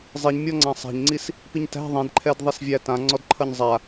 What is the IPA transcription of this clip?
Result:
zˤiɲmʲɔŋ͡ǀã sˤæ̤ɲŋ͡ǀis | piɲtæ̤ ðˤĩdǃʰɛdðˤisvʲæ tãŋ͡ǀɔdǃʰʌɲ zˤa

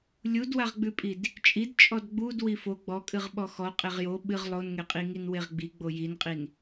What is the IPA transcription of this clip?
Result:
lʲudwaʁɡ͡bʉpʼid | t͡ʃʼid t͡ʃʼɔdɡ͡bud wifo ɡ͡bɔkʼɨʁɓɔ xɔqʼeʁ jo ɓɨʁ lˠonŋeqʼiŋin weʁɡ͡bi ɡ͡bojinqʼin

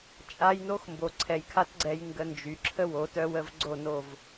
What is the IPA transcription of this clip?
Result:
t͡ʃʼa˦j no˦xmbo˨ǀʰɛ˨j kʰa˦tɡ͡ǀɛ˧j ŋɡə˧nd͡ʒy˨ǁʰə˦ wo˨˦tœ˦wə˦v ɡ͡ǀo˦˨no˦˨v

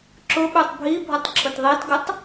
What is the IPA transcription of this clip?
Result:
ǁʊɓʉtˤ bʱibʱʊtˤ ǁʰʊtðˤitɡʊtˤ

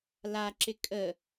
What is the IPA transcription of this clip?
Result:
la ǁɪkʼə

